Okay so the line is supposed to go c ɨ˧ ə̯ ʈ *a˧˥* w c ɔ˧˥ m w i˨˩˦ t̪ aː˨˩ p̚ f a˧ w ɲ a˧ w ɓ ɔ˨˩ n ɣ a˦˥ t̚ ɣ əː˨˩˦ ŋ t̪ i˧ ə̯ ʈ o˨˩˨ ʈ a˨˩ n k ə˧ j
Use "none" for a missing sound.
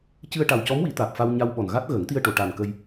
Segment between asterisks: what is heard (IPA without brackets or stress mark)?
a˨˩